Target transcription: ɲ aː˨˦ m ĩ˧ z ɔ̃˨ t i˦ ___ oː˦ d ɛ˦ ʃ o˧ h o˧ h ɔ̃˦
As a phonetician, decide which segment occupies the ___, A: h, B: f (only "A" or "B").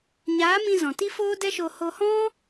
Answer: B